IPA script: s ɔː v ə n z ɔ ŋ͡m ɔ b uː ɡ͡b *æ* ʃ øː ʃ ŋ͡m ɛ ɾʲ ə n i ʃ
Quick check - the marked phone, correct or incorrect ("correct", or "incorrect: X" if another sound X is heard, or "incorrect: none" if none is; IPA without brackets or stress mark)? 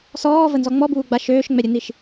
incorrect: a